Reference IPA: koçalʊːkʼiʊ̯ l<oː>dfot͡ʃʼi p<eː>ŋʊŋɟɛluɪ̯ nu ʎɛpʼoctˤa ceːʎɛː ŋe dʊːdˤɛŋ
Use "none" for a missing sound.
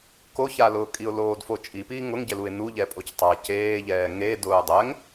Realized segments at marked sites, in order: oː, iː

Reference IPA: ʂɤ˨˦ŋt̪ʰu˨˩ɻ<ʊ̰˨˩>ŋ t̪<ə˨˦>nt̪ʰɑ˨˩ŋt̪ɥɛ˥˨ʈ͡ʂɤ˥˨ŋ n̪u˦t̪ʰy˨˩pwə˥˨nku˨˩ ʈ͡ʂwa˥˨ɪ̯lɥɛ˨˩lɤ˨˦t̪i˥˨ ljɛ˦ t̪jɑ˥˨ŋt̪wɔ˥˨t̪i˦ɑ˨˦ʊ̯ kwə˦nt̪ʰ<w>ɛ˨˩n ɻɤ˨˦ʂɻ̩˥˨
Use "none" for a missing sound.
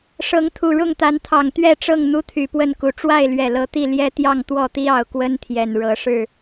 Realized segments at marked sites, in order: ʊ˥˨, a˨˦, j

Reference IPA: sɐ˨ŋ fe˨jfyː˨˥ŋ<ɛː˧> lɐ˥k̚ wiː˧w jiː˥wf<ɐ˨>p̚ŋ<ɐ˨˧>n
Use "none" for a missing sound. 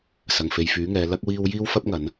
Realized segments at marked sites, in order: ɛː˨˧, ɐ˥, ɐ˨˧

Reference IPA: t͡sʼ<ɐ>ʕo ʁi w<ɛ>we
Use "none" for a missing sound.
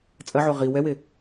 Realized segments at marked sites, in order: ɐ, ɛ

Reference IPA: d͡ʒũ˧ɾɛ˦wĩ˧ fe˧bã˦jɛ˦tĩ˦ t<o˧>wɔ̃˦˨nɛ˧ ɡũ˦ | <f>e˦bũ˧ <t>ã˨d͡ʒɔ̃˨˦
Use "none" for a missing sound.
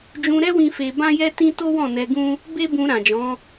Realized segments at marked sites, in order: o˦, b, ɾ

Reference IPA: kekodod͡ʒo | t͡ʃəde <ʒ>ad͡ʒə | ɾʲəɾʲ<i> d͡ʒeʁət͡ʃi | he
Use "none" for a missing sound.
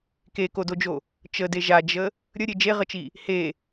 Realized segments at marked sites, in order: ʒ, e

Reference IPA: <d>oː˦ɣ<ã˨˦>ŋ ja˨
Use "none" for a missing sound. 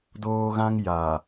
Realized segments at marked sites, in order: d, ã˦

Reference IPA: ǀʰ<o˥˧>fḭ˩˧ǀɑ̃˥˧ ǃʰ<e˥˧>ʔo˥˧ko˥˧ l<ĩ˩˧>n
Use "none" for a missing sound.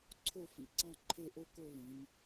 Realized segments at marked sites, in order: o˥˧, e˥˧, ĩ˩˧

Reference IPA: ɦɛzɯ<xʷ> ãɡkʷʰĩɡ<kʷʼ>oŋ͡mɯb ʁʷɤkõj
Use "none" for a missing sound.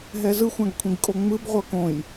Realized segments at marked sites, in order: xʷ, kʼ

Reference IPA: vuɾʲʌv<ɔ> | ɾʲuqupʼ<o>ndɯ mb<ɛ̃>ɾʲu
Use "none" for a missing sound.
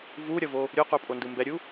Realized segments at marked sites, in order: o, o, ɛ

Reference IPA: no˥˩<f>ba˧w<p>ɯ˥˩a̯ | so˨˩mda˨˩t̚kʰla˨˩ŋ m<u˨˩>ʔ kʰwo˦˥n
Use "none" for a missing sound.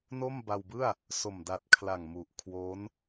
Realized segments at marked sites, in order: m, b, u˨˩

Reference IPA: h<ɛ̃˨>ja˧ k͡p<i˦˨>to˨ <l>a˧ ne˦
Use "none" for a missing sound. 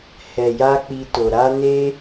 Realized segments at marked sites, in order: ɛ˨, i˧, ɾ

